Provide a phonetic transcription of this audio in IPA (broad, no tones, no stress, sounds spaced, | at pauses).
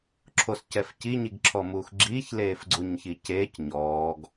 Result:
ǁʰ o s c ɛ f c i ɲ i ɡ ǁʰ ɔ m uː x ɡ͡ǁ iː ç l eː f ɡ͡ǀ u ɲ ç iː c eː c ɲ ɔː ɡ